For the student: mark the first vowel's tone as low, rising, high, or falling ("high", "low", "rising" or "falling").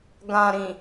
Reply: low